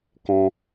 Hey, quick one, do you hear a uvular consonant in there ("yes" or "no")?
no